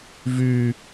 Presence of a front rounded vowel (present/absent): present